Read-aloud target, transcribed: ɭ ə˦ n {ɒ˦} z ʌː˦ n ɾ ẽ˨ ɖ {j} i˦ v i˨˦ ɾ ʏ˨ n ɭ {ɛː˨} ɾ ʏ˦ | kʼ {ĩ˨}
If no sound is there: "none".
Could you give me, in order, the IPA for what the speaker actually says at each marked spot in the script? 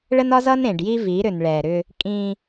ɒ˦, j, ɛː˨, ĩ˦

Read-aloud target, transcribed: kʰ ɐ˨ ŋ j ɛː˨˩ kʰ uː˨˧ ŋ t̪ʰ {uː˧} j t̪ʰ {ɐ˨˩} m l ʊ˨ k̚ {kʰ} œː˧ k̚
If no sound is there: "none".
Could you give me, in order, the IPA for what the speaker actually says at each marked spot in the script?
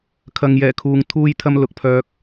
uː˧, ɐ˧, pʰ

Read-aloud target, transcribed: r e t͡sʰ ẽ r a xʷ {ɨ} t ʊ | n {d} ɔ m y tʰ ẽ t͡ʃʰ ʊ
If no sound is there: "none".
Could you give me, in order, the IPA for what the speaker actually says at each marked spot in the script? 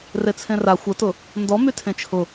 ə, d

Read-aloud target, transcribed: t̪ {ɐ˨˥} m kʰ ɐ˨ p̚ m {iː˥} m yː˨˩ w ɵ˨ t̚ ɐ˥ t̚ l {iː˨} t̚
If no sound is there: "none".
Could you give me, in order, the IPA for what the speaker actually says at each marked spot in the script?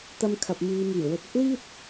ɐ˧, iː˨˧, iː˥

